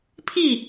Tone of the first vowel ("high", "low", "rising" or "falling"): falling